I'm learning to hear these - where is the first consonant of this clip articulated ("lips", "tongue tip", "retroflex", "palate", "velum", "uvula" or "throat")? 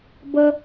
lips